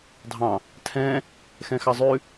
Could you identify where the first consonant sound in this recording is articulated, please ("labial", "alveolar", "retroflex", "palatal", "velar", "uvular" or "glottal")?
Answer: alveolar